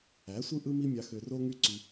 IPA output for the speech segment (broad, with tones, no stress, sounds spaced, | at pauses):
æ˨˦ sʷ ɯ˦ ʔ ɯ˦ m i˦ mʲ ɑ˧ x ø˧ r o˦ ŋ y˦ ǀ y˧